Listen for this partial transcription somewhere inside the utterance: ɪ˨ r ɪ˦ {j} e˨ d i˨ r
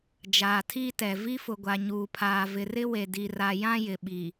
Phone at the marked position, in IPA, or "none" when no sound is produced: w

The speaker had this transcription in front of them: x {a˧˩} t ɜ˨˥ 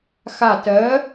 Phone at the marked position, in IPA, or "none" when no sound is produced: a˧˩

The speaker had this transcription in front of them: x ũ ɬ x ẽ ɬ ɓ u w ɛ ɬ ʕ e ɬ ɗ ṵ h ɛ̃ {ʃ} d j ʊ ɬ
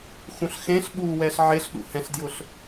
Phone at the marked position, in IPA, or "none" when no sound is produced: ɬ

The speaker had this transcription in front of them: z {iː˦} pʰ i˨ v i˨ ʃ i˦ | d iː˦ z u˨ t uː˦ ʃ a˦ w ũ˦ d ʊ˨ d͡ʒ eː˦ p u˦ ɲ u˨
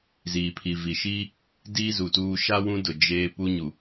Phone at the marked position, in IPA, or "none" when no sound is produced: iː˨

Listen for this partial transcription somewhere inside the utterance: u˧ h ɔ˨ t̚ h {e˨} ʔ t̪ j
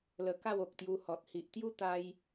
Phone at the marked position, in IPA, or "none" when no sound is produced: i˨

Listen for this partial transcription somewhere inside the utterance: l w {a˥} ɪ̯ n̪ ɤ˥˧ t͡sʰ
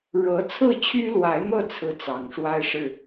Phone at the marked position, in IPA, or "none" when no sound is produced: a˧˥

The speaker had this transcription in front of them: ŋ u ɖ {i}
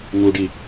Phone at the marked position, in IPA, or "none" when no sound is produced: i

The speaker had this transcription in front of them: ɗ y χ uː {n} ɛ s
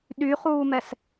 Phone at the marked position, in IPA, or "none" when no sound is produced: m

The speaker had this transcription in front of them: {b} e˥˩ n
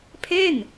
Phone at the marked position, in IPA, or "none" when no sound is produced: pʰ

